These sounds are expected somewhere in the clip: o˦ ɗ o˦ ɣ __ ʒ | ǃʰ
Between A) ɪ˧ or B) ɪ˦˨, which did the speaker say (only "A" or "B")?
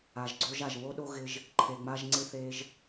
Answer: A